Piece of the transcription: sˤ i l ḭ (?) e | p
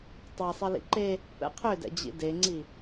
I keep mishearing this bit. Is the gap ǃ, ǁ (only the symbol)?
ǃ